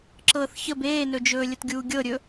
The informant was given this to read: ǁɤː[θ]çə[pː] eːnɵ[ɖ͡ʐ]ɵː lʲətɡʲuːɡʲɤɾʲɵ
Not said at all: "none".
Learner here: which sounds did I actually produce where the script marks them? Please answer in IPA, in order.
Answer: θ, b, d͡ʒ

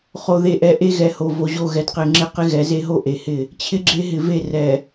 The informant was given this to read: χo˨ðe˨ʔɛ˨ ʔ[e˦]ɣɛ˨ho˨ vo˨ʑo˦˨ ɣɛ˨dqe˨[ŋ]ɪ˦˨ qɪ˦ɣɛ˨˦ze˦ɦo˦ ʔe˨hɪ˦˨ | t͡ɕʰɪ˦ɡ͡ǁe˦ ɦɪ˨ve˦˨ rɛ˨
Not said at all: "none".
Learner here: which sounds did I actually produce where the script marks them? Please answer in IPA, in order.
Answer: e˦, ŋ͡ǁ

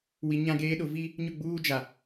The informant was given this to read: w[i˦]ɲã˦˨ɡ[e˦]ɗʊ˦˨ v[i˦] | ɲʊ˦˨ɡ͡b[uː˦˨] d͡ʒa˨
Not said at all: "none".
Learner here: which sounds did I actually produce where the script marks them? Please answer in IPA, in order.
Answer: i˨, eː˦, i˦, uː˦

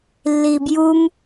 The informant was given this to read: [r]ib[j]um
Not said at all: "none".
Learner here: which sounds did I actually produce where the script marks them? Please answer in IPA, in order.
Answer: lː, j

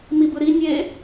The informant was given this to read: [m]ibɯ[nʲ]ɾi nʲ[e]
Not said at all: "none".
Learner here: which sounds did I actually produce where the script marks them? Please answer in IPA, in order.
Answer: m, none, e

